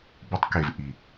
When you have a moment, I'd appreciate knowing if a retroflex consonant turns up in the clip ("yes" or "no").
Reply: no